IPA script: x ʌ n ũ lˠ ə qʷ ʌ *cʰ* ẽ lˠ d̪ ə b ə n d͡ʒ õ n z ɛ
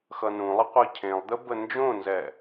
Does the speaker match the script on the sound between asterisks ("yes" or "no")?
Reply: yes